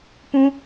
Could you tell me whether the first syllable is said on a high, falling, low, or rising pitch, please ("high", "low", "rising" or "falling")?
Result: high